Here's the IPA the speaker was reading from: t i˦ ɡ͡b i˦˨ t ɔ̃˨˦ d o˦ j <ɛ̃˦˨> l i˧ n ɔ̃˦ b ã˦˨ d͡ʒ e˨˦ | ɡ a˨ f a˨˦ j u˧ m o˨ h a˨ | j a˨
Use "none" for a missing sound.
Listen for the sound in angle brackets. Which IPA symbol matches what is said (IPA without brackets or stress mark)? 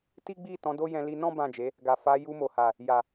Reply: ɛ̃˧